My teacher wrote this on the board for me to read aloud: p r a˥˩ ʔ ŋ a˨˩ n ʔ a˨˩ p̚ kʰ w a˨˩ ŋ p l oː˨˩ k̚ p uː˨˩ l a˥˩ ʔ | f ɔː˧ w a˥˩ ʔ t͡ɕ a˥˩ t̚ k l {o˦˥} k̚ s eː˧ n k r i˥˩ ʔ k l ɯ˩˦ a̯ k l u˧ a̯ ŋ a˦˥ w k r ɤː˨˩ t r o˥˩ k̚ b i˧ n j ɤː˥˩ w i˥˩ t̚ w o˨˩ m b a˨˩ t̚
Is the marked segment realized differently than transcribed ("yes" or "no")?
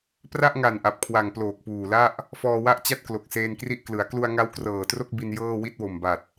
yes